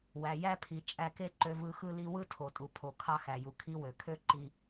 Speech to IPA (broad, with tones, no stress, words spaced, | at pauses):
wæ˨jæ˥pʰi˨ t͡ʃʼæ˦ke˥ ǃø˦vɯ˦xɯ˥li˥ wɯ˥tʰo˨tʼu˨ pʰo˨ kʰɑ˦xæ˩ju˩ kʰi˦wø˩kʰø˥ ǃi˦